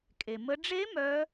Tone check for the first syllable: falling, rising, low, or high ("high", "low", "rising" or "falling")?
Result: low